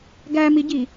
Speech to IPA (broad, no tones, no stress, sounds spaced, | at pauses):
ɡ æ m i ɟ i